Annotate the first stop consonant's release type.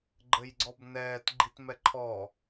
click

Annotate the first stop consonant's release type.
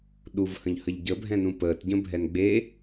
implosive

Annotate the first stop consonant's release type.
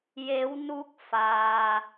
plain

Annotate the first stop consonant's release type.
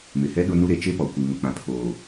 implosive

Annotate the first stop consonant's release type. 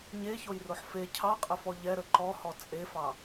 aspirated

